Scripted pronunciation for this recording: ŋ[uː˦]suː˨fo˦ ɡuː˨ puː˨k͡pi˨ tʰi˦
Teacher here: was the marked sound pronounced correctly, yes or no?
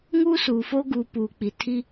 yes